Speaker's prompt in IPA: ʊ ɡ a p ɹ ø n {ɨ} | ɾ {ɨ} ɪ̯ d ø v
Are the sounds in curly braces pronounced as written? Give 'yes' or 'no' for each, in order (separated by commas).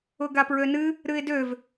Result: yes, yes